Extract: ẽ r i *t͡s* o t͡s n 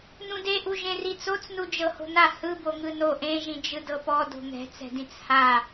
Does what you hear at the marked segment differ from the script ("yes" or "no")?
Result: no